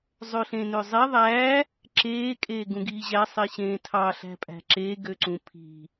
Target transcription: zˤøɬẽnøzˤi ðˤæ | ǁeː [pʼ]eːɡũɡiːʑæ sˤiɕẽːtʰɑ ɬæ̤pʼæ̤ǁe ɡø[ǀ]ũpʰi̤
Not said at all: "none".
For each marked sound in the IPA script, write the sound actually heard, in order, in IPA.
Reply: kʼ, ǀ

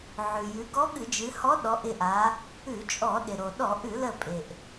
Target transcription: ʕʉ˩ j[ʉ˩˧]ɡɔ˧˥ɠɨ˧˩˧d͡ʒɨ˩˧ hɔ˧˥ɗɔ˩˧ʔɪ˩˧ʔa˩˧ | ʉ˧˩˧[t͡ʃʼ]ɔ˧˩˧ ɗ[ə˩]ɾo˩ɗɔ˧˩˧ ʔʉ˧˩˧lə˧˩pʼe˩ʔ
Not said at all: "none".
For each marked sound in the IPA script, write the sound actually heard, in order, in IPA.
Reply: ʉ˩˧, t͡ʃʼ, ɪ˩

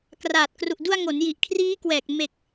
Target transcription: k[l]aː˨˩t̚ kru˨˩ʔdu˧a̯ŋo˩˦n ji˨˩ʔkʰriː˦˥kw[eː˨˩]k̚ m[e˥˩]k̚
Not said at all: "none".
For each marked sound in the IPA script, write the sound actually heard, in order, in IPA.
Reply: r, ɛː˨˩, e˨˩

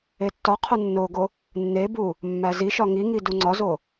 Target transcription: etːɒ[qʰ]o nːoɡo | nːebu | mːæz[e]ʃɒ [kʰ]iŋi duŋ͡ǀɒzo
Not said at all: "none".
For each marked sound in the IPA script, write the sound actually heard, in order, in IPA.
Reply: qʰ, i, ŋ

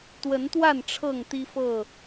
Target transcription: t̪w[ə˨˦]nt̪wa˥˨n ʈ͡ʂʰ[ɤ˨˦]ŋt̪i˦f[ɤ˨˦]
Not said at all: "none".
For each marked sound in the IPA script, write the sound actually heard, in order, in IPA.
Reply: ə˨˦, ɤ˥˨, ɤ˥˨

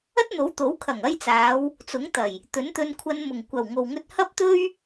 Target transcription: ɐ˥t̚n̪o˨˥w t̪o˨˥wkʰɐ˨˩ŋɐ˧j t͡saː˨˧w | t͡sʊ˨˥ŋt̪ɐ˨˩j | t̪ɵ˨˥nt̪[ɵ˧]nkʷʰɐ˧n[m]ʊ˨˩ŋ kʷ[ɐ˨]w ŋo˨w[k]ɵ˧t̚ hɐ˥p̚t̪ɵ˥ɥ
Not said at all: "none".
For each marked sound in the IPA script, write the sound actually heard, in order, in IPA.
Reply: ɵ˧, m, ɐ˨˩, ŋ

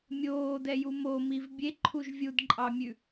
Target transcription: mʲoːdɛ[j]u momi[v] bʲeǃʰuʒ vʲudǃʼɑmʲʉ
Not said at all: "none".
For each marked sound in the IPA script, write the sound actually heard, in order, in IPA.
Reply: j, v

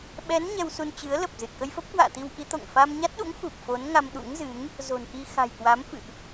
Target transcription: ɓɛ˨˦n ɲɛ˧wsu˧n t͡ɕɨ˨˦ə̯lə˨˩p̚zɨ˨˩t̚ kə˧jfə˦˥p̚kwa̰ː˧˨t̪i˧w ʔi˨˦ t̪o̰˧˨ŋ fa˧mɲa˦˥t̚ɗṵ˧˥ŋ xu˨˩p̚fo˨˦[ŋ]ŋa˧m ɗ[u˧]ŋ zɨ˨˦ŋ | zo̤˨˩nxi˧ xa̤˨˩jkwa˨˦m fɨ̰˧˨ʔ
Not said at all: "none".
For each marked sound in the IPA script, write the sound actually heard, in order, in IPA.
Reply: n, ṵ˧˥

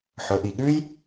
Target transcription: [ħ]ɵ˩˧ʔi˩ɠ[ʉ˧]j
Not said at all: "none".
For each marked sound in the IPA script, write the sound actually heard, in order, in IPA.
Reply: ħ, ʉ˥

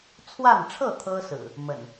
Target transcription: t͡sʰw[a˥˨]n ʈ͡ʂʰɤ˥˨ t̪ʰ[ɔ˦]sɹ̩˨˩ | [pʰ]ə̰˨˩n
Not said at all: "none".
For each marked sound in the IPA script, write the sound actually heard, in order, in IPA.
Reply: a˥˨, ɤ˦, m

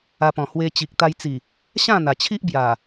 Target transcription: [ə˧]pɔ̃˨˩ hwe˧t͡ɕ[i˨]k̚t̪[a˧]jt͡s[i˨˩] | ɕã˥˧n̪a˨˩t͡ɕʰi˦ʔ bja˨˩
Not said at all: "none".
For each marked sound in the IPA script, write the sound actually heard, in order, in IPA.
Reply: a˧, i˨, a˧, i˨˩

